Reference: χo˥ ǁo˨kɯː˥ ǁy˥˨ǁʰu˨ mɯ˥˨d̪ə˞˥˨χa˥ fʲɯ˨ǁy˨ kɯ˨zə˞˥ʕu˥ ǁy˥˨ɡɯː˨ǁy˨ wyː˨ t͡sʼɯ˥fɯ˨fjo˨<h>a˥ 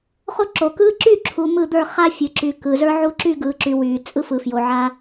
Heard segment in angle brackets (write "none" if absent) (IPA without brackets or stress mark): ʕ